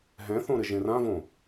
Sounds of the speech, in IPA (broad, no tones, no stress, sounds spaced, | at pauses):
ɦ ɛ̃ θ õ ɾ ɘ ʒ ẽ r ã v õ